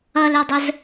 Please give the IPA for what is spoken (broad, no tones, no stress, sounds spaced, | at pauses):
ʌ l ɛ dˤ ə z